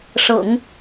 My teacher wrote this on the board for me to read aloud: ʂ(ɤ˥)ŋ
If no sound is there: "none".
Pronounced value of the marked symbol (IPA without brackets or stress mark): ɤ̰˨˩˦